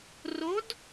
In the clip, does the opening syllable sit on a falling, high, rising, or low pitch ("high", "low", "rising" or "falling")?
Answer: rising